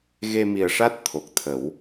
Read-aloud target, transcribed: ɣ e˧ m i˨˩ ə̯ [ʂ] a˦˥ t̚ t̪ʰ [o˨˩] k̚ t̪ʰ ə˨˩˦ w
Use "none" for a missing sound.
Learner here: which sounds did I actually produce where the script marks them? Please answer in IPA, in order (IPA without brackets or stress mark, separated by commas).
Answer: ʂ, o˨˩